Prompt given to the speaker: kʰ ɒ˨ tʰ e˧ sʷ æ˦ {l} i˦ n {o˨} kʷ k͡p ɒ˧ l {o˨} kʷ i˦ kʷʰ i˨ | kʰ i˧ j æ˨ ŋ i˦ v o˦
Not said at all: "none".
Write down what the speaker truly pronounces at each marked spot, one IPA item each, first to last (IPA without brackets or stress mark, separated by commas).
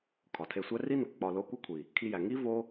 r, o˨, o˦